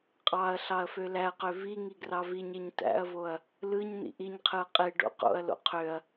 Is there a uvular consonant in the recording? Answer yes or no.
yes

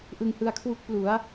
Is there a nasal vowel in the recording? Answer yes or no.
no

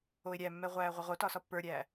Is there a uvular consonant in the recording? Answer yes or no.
yes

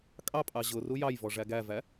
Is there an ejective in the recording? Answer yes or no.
yes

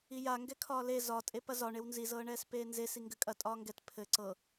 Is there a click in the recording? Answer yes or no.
yes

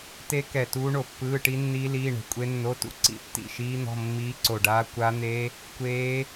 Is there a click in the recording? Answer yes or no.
yes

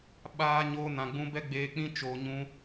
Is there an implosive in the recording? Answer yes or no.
yes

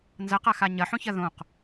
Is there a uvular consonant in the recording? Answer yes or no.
yes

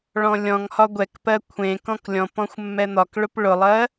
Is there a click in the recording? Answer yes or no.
no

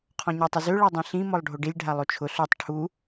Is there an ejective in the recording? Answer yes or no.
no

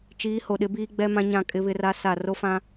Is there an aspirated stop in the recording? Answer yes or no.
no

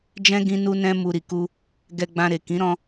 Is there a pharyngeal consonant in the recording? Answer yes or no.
no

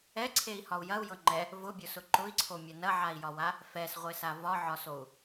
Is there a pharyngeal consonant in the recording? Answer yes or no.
yes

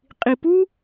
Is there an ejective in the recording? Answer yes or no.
yes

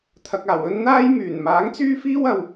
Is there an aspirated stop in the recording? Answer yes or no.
yes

